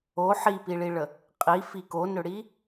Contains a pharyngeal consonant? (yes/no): yes